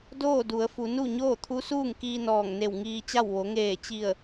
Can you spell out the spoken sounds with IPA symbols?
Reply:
doː˥˨du˩˧ə̯fu˩˧ nu˥˨ɲoː˥˨ t̪ʰu˧˥suː˥˨ŋkiː˧ nɔː˧˩ŋne˧˩w ŋiː˧t͡ɕa˥˨w ʋo˩˧ŋeː˧˩t͡ɕi˧˩ə̯

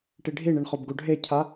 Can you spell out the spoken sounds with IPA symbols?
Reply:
ʈiɖʱiɳiɳ χobɡuɖʱecʰa

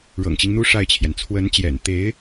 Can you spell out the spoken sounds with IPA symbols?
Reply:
ɻɤ̰˨˩ŋt͡ɕi˦ŋn̪u˥ ʂa˥˩ɪ̯t͡ɕʰjɛ˩n t͡sʰwə˧˥nt͡ɕjɛ̰˨˩nt̪e˧˥ɪ̯

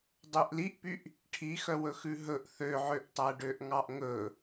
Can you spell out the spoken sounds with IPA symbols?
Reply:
dˤøʔliʔpyʔ | ʈʰixœwɵxʉ ɦɵʔ θøʕøʔtˤæ ɖøʔŋɑʔŋɵ

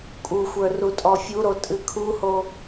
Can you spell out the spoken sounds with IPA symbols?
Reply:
kʼuxʷə˞rutʼɔ fʲuɾo tʼɨkʰuho

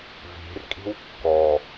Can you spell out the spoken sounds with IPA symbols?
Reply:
vi̤r kʼi̤wkːɔ

